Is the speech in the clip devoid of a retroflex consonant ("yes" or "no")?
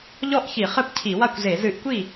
yes